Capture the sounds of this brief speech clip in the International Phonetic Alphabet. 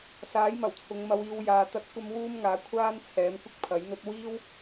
saː˨˥jmɐ˨˩wt͡sʰʊ˨˧ŋ mɐ˧wiː˧w jaː˧t̪ɐ˥t̚ kʷɐ˥mwuː˥mŋaː˨˥ kʷʰaː˥n t͡sʰɛː˨˥mkʷɪ˥k̚pʰɐ˨˥jn̪ɵ˥t̚ wiː˥w

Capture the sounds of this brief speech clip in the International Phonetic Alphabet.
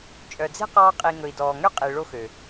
t͡ʃʼœ˨d͡ze̤˦qɑː˧qʼi˨ ŋɵ˨i̯dɔː˨ŋø˦qʼi˨ ɭo˦xø˨

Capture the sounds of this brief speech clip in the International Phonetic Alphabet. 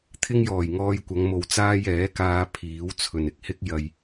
t̪ʰɪ˥ŋjɔː˨˩jŋɔː˧jkʷɐ˨˧ŋ mo˨wt͡saː˥j ɛː˨˥kaː˧ pʰiː˨˥wt͡sʰɵ˨n ɪ˨k̚hɪ˥k̚ jɐ˧j

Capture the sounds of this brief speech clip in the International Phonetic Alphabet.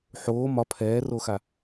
ħoː mɒ pʰɛːroxa

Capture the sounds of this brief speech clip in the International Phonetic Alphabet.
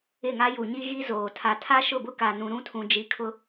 ɪ˦˨ŋa˦ ju˨ɲi˦ɣi˦zoː˨ tʰa˨tʰa˦ʃʊ˦˨bʊ˦ ka˨nũ˨ɾũ˦tʰũ˨ d͡ʒi˨ kʰʊ˦

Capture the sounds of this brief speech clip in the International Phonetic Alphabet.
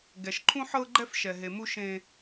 ɡɛ˨ʃǃʰũ˦ħɤ˦ɡ͡ǃɛ˦f ʃɛ˨ɦe˨mu˦ ʃẽ˦

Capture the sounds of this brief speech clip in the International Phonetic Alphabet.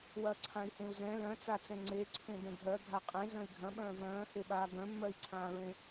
wɐːǀʰãi̯hẽu̯zɛ̃ lœ̃t͡sat͡sɛ̃ ŋ͡ǀeǀʰẽ dɛ̃ɡʱɜ ɡʱaqʼẽ zœ̃i̯ɡʱɐ̃ɓœ̃ː vœ̃ːheɓaː ɡœ̃mːɜi̯ǀʰãːɹẽ

